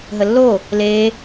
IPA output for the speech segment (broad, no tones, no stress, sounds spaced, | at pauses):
ɦ ə lː o | l e